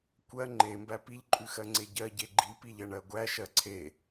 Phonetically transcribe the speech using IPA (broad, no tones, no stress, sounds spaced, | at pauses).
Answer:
kʷ ɜ ŋ͡ǃ e m b æ p i ʎ ǃʼ ʉ x ɜ ŋ͡ǀ e ɟ ɜ ɟ e ɡ͡ǃ i p i ʎ ɐ ɳ ɜ ɡʷ æ ʃ ɜ ǀʰ e